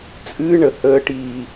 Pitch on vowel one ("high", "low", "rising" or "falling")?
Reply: high